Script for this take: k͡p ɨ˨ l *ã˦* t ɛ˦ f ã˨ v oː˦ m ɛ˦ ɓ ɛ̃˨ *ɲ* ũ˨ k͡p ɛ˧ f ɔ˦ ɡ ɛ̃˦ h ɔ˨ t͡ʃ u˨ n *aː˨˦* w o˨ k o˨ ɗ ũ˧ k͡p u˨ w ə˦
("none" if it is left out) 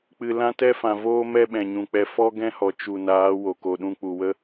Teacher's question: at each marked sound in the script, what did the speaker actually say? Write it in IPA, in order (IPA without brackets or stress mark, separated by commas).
ã˦, ɲ, aː˨˦